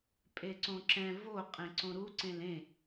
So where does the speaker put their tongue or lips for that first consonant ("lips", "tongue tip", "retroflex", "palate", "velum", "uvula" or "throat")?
lips